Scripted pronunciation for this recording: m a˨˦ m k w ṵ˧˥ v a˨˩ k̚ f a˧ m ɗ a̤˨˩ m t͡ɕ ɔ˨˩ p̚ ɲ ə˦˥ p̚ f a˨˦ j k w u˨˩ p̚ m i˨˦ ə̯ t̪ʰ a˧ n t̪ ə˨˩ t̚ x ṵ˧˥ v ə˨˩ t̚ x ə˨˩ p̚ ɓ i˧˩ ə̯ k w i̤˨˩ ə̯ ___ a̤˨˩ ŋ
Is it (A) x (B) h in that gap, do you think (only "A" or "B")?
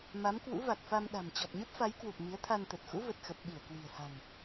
B